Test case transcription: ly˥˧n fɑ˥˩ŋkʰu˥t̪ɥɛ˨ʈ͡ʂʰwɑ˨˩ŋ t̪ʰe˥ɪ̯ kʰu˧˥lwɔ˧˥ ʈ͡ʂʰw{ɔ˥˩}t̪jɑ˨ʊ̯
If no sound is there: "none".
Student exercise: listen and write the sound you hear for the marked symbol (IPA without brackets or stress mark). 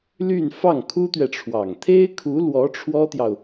ɔ˥